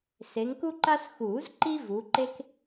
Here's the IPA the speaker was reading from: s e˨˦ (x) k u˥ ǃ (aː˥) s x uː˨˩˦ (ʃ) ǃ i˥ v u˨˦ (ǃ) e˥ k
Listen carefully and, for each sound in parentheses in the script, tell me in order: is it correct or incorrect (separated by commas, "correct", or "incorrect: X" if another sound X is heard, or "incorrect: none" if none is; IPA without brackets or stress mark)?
incorrect: ŋ, incorrect: a˥, incorrect: z, correct